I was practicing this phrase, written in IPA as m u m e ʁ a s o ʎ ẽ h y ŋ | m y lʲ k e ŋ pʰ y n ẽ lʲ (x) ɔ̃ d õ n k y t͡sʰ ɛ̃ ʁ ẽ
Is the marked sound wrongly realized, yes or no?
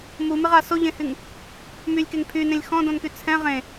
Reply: no